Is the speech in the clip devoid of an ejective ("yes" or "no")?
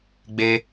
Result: yes